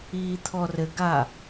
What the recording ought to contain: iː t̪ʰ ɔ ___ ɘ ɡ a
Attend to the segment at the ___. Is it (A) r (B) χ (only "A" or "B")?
A